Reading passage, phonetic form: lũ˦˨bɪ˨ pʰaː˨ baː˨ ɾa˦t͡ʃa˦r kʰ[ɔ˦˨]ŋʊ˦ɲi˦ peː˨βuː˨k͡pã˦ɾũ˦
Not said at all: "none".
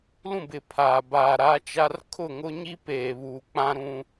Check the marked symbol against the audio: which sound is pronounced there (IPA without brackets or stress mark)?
ʊ˦˨